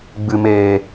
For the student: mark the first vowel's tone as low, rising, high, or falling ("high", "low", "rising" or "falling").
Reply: low